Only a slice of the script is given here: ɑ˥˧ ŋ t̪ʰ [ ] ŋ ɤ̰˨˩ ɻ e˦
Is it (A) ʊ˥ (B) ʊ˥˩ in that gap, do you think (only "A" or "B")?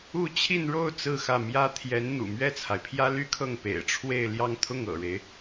B